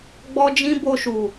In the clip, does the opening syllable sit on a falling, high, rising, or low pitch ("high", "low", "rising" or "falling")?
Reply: high